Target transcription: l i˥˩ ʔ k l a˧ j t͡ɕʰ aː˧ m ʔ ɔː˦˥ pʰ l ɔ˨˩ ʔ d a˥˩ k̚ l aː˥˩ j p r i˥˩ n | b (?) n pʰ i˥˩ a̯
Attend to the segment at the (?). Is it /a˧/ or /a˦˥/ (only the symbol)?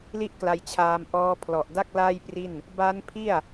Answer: a˦˥